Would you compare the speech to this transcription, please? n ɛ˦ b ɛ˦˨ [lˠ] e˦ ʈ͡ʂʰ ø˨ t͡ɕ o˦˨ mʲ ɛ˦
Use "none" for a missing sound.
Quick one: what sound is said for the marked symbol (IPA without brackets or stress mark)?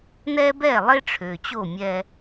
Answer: lˠ